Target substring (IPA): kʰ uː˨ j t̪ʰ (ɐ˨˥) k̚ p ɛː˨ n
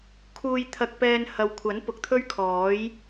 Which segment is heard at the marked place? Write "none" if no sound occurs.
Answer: ɐ˨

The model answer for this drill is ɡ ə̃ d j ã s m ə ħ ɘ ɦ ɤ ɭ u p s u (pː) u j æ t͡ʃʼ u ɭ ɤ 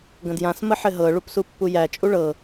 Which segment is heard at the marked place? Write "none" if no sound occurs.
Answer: pː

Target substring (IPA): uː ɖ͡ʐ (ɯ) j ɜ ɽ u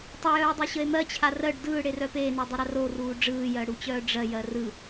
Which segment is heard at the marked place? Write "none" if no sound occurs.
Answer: ɯː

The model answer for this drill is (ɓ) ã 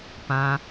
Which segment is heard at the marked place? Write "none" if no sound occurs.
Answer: p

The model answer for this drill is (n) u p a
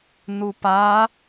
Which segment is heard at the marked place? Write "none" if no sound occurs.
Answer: n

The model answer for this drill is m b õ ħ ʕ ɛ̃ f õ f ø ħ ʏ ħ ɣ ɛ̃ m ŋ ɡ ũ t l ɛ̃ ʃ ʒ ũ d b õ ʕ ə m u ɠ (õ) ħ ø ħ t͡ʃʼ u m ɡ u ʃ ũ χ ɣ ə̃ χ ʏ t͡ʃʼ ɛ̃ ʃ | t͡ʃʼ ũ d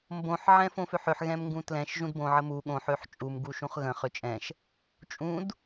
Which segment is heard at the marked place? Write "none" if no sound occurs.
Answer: õ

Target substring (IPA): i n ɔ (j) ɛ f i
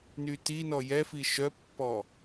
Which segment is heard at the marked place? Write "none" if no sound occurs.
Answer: j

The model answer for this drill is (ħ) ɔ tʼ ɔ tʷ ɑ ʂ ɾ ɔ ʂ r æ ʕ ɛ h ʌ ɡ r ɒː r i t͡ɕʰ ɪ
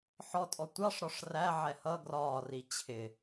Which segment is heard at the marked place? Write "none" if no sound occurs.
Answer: ħ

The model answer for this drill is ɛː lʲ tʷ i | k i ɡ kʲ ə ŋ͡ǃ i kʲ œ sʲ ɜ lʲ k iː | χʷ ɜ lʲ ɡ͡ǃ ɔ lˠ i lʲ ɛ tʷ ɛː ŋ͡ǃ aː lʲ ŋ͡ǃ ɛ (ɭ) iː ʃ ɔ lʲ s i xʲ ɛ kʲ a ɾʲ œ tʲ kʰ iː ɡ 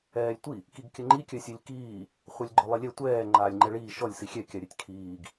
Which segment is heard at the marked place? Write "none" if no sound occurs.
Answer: ɭ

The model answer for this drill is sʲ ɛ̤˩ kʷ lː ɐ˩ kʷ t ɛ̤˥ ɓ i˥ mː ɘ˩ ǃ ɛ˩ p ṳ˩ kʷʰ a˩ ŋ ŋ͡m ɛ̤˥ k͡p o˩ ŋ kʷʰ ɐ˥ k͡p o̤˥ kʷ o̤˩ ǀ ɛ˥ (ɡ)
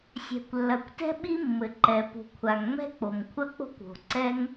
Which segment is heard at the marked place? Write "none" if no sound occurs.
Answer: ŋ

